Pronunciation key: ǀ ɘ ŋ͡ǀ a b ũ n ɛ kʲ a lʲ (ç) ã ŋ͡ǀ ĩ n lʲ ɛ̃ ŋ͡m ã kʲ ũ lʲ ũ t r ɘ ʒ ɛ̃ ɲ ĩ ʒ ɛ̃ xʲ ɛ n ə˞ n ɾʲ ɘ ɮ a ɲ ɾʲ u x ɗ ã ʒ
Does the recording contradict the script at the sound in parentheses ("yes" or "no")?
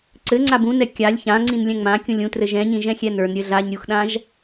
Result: no